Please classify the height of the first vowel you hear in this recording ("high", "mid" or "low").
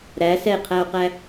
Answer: low